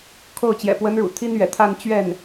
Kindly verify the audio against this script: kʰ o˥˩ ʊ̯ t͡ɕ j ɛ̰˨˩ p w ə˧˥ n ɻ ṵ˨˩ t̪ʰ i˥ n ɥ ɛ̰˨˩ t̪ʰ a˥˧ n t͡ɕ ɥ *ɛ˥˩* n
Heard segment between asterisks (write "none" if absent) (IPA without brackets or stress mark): ɛ˥˩